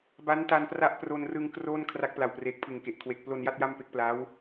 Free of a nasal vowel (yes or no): yes